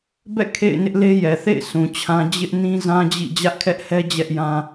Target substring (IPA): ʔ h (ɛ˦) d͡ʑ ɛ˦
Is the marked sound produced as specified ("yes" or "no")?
yes